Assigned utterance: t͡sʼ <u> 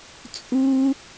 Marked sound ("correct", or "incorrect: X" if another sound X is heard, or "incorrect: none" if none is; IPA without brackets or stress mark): correct